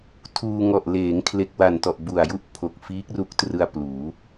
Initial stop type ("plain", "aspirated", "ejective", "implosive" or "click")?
aspirated